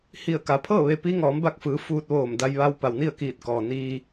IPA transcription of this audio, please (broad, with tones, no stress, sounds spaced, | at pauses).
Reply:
h i˧˩ ə̯ k a˩˧ pʰ ɤː˥˨ ʋ e˧ p i˧˥ ŋ ɔː˩˧ m b a˧˩ k̚ f ɯː˩˧ f uː˧ t̚ ʋ oː˧˩ m d a˧ j ʋ a˧ w p a˩ w n i˥˨ ə̯ k iː˧˩ t̚ k ɔː˩ n iː˧